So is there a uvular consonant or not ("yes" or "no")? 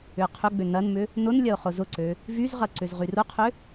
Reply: yes